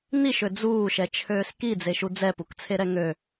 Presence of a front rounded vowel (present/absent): present